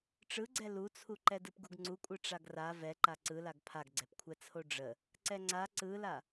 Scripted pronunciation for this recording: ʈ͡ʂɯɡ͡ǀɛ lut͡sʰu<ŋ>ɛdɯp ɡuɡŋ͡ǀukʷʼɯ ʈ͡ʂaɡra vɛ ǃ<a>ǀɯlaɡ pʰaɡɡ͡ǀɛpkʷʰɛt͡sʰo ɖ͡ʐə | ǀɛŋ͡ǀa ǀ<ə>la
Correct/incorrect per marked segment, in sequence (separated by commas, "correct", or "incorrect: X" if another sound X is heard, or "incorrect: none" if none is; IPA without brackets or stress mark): incorrect: ǃ, correct, incorrect: ɯ